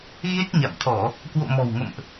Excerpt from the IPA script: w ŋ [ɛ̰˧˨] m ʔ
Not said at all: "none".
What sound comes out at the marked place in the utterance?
ə̰˧˨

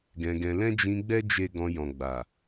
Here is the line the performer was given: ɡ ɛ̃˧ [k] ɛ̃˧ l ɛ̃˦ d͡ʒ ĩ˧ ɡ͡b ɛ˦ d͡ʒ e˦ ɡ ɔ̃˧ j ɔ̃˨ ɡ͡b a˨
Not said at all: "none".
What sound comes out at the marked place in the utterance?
ɡ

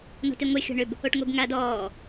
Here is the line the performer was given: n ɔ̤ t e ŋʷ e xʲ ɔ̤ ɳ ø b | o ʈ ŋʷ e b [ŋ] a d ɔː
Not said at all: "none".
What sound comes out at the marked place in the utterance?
ŋ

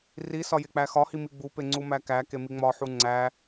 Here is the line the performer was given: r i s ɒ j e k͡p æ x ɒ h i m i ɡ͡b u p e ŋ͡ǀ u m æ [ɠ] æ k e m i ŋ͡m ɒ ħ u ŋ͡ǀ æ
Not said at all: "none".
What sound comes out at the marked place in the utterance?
k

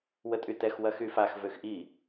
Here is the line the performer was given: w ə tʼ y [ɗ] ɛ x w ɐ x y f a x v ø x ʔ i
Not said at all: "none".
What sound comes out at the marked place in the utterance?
t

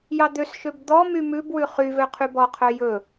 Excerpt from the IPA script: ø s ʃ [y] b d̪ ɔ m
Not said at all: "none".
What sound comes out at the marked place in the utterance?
ø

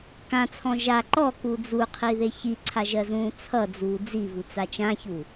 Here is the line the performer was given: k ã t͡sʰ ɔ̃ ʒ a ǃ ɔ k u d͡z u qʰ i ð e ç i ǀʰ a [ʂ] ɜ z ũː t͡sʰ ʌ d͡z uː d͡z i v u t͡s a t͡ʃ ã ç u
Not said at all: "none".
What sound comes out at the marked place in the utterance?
ʒ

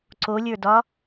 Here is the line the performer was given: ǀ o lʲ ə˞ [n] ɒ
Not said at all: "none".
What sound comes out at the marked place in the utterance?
d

